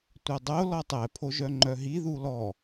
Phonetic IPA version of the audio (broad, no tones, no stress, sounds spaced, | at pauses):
tʷ œ dˤ o l ɔ tˤ ɛ pʰ o ʒ œ ŋ͡ǃ œ ɦ i ð u l ɔ